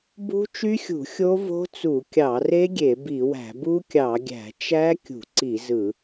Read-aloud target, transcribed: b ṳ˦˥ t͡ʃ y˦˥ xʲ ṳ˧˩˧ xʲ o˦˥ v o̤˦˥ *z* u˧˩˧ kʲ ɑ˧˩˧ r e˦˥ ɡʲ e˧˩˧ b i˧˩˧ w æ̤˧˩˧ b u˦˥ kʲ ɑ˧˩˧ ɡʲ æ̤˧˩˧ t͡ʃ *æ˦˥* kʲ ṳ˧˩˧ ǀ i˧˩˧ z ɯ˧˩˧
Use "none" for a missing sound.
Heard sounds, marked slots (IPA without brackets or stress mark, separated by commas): t͡s, æ˦˥